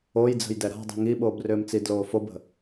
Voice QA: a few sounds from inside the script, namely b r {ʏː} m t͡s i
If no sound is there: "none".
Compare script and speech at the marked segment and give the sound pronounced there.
ʏː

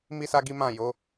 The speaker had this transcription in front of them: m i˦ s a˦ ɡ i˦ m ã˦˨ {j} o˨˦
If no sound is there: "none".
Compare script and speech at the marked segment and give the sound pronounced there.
j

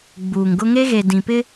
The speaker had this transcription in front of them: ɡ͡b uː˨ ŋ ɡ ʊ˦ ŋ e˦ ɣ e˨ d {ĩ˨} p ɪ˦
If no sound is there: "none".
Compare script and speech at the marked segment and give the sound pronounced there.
ĩ˨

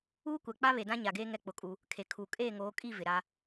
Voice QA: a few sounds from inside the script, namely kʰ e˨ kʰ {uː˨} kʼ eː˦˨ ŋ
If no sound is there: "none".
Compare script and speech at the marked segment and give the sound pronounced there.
uː˨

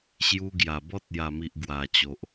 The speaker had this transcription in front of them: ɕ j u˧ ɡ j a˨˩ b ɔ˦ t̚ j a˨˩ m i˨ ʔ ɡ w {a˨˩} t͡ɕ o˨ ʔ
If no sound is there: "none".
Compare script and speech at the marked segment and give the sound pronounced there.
a˨˩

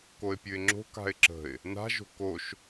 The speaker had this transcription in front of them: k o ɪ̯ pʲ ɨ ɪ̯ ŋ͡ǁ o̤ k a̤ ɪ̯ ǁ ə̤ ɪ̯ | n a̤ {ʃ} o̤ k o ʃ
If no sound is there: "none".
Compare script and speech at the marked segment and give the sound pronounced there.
ʒ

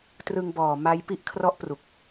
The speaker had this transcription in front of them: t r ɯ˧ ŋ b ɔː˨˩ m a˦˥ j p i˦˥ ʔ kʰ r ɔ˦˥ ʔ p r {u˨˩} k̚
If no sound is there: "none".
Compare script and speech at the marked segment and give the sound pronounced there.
u˨˩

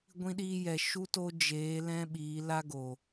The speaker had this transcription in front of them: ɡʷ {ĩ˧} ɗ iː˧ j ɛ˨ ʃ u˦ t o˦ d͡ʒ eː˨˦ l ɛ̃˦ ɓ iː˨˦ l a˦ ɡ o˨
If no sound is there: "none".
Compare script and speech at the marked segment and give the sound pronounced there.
ĩ˧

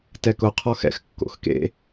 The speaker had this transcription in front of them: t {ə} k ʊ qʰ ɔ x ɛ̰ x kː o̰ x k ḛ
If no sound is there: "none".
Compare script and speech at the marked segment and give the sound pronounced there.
ɛ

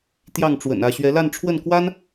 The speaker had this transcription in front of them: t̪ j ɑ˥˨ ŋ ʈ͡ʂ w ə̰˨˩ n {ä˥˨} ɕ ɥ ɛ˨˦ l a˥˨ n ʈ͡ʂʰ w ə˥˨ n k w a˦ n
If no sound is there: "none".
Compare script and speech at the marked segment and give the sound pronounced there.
ä˥˨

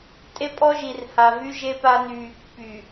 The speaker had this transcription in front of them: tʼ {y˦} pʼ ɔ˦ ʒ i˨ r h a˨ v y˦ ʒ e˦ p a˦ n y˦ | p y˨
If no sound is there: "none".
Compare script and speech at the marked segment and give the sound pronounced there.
e˦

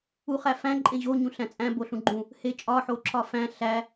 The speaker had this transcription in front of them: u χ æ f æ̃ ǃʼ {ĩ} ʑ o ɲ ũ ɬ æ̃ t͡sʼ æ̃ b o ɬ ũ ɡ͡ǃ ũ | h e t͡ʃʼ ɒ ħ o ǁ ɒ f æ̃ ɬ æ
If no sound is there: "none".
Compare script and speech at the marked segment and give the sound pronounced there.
ẽ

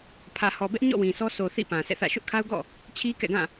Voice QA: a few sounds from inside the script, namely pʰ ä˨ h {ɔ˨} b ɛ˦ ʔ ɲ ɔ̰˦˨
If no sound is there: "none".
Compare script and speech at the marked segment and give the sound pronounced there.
ɔ˨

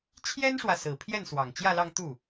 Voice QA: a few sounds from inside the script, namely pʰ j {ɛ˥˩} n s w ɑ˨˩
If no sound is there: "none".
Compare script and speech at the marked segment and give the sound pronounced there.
ɛ˥˩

